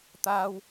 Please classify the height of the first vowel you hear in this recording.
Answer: low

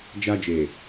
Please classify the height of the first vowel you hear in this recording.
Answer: low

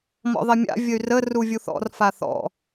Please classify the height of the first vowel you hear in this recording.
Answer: mid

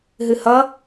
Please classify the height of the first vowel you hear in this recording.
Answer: high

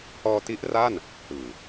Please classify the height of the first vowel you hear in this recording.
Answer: mid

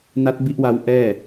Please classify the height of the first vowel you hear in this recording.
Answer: low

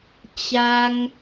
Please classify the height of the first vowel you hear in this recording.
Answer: low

